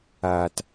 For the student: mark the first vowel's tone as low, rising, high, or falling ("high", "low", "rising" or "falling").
low